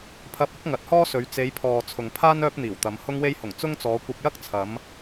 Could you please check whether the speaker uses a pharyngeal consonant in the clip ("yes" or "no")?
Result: no